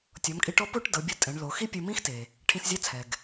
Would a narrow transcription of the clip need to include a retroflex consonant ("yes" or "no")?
yes